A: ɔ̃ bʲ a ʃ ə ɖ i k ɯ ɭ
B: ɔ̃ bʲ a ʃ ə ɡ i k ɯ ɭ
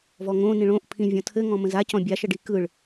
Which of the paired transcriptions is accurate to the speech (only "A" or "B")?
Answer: A